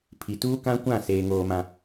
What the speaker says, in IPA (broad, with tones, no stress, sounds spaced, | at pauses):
pʰ i˨ t uː˦ k ã˦ kʷ ã˦˨ s eː˦ ŋ oː˦ m ã˦